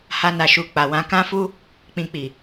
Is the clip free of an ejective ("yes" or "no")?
yes